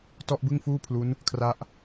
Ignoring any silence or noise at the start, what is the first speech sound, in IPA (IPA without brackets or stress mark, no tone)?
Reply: t